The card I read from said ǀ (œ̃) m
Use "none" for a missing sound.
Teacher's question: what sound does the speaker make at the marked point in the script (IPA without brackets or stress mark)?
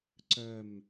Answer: œ